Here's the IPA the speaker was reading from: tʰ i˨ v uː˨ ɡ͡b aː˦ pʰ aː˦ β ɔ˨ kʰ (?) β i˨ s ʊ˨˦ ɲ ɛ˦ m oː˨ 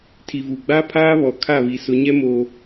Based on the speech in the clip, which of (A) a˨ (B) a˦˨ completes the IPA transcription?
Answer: B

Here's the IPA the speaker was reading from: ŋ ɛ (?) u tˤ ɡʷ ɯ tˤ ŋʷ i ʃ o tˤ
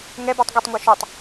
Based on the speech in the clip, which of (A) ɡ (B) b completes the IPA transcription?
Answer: B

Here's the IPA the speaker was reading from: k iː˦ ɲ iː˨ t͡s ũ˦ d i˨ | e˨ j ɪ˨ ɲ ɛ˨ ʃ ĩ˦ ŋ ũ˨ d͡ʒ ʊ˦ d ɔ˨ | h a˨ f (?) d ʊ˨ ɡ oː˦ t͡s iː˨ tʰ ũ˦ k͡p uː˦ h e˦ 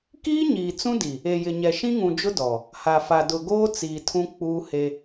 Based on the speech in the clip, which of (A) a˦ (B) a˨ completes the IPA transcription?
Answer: B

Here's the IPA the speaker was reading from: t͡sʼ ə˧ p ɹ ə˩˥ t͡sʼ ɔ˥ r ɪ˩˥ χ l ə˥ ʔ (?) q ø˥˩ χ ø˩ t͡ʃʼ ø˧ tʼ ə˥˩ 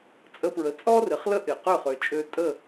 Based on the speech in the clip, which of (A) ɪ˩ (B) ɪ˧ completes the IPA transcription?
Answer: A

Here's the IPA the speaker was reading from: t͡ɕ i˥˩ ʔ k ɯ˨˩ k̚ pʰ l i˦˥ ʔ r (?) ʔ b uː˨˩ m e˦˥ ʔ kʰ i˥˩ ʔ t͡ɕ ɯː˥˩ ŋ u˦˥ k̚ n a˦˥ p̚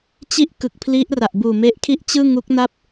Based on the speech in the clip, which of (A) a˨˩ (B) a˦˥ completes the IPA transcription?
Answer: A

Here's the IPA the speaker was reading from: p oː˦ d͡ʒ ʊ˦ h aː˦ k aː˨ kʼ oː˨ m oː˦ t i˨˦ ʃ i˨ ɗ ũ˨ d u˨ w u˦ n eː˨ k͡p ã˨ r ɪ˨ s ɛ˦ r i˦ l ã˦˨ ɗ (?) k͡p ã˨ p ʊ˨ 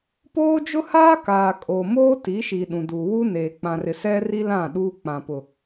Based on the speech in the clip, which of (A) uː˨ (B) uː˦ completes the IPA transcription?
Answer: B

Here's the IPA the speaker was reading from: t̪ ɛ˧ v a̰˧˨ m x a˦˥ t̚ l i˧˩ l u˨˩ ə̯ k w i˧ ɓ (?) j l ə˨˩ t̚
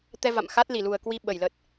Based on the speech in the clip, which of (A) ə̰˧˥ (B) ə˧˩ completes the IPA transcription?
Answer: B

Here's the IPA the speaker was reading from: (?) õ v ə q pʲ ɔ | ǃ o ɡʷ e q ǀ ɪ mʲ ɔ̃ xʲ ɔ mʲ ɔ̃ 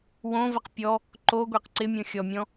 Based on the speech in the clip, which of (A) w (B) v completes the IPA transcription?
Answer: A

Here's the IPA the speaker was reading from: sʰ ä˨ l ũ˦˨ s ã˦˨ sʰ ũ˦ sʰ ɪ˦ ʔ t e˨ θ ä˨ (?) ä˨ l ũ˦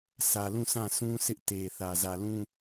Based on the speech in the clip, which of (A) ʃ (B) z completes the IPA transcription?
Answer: B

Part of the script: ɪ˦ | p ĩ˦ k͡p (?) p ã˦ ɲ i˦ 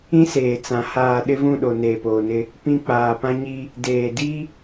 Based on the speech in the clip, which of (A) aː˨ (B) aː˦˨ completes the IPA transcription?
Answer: A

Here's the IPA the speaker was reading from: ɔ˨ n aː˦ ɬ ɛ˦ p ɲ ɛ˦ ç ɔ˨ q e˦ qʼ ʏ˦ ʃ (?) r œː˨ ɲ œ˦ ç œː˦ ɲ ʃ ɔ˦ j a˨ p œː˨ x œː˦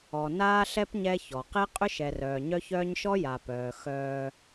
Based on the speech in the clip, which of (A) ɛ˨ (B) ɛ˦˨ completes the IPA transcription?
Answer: A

